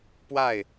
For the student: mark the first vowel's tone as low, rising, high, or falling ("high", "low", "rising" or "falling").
falling